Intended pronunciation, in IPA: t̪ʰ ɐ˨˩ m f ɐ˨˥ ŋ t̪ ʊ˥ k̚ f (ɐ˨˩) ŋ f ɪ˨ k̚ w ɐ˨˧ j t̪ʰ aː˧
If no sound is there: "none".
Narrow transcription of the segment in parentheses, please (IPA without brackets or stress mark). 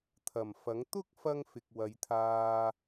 ɐ˥